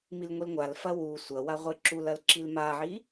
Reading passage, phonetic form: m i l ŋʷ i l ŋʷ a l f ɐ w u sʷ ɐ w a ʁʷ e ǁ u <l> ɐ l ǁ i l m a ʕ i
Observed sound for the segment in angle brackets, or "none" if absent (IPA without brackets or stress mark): l